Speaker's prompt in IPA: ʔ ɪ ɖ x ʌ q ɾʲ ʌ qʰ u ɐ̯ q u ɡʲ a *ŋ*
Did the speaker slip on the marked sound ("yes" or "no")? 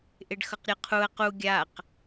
yes